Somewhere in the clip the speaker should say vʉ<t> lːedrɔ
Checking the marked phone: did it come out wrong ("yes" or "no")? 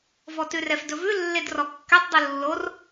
yes